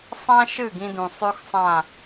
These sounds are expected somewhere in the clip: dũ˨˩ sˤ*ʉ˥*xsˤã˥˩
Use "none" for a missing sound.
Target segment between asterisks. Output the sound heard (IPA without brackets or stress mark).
ʉ˥